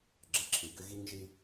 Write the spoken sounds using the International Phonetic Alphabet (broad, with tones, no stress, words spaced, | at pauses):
ɡ͡ǁə˨ǁʰi˩ɡʏ˦ ɣi˥ŋʒi˥